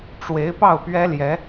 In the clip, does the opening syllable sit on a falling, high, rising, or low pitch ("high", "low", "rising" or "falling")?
rising